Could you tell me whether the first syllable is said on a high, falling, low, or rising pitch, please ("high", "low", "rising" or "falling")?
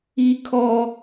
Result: high